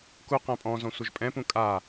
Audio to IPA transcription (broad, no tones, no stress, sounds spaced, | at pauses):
k u q æ̃ pʼ ɔ̃ z ɔ̃ sʷ ə ʒ pʼ ɛ̃ p ũ kʼ a